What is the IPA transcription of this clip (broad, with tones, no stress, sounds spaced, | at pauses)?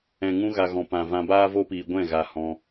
ɛ̃˨ ŋ ũ˧ ɣ a˨ ɣ ɔ̃˨ p ã˨ v ã˧ b aː˦ v o˦ p iː˧ ɡʷ ɛ̃˦˨ ɣ a˧ h ɔ̃˧